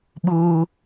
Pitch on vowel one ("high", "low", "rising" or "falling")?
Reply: high